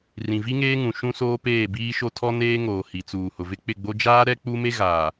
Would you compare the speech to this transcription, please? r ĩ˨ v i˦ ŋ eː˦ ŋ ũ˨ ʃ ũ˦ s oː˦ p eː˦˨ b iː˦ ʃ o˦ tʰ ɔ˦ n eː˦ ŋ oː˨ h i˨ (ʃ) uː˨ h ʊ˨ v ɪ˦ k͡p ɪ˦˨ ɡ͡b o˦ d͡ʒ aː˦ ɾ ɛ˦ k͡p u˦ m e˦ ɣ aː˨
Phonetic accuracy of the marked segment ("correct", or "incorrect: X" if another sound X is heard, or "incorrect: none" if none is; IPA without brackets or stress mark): incorrect: t͡s